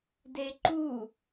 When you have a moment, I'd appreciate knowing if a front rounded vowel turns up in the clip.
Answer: no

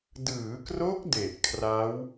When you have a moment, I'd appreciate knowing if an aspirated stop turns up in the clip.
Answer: yes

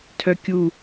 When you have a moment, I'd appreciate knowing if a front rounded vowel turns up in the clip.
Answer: yes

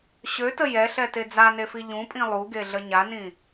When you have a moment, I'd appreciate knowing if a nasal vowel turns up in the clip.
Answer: yes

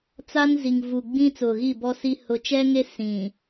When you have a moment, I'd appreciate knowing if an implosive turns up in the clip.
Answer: no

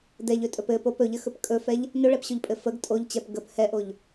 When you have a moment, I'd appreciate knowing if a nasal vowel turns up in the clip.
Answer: no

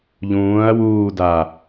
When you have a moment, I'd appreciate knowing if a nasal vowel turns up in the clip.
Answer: yes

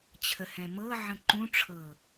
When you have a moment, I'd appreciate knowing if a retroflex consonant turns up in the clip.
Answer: yes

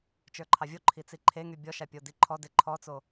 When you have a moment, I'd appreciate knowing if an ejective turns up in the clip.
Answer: no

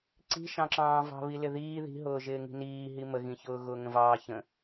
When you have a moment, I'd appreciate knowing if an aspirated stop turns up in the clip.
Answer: no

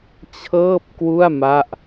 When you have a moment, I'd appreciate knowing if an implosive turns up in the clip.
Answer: no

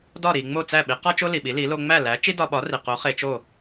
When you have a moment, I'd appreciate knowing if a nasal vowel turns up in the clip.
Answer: no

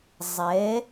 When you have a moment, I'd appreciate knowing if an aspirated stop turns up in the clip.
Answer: no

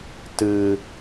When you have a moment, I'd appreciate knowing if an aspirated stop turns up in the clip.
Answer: no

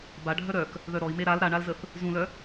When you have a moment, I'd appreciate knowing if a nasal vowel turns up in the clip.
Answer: yes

